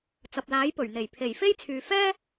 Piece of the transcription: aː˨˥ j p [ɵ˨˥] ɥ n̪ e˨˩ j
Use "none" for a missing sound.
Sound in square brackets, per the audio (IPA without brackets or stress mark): ɵ˨˩